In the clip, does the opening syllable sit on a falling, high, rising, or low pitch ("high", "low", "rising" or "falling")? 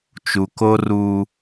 low